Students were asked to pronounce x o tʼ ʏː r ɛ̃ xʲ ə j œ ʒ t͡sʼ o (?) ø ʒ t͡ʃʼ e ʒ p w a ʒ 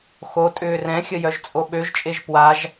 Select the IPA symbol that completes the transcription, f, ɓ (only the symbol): ɓ